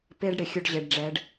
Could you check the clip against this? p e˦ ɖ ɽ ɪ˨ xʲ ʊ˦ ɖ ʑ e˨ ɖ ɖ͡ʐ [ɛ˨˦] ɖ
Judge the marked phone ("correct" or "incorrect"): correct